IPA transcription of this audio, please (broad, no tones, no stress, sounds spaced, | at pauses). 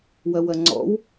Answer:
w ɐ w ɐ ŋ͡ǀ ɔ̰ w